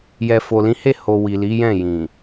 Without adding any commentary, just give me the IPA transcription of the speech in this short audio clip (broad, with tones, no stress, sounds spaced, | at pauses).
j ɛ˨ f o˨ l ĩ˨˦ h e˦˨ h o˨ w i˨ l i˨˦ j ɛ̃˦˨ j ĩ˨